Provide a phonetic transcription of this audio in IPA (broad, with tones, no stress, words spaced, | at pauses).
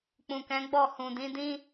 k͡pũ˨kɛ̃˨˦ɡ͡bɔ˦˨ hũ˨dĩ˨˦dĩ˦